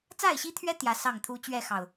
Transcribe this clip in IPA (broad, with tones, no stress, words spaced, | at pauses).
t͡sa˥˨ɪ̯ɕi˦t̪ʰɥɛ˦ t̪jä˨˦ sɑ˥˨ŋt̪ʰu˦ t͡ɕɥɛ˥˨xɑ˨˩ʊ̯